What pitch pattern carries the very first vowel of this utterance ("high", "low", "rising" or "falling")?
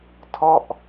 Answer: falling